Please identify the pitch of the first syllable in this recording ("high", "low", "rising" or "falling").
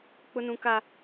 high